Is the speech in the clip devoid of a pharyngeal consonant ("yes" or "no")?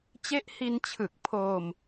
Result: yes